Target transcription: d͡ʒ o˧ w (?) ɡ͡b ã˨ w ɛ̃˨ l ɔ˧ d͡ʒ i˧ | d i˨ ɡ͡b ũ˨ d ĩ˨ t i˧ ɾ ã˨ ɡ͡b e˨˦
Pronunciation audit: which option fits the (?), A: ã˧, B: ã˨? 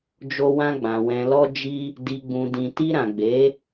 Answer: A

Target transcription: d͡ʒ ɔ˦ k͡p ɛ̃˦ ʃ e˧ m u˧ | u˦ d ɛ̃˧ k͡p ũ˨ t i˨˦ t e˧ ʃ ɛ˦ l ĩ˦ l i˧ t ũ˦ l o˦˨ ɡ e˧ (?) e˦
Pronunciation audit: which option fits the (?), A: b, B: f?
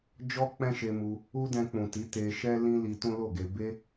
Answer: A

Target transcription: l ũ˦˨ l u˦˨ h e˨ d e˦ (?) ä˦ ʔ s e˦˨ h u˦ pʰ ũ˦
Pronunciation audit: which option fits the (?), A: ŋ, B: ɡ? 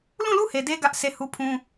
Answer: B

